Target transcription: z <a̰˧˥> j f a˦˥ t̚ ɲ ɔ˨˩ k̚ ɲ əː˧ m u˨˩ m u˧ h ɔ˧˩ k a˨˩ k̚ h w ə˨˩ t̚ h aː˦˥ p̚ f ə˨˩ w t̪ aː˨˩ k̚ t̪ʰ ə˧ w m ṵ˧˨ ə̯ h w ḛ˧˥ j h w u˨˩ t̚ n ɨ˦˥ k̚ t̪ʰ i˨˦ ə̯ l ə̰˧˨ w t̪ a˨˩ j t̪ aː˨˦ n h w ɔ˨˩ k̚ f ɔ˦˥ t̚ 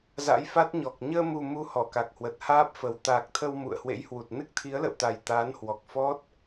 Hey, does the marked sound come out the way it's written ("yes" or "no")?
yes